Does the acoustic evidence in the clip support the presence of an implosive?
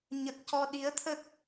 yes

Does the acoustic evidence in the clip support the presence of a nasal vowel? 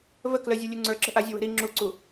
no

